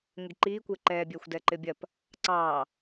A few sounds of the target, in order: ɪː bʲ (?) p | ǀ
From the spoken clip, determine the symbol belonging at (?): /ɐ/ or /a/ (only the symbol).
ɐ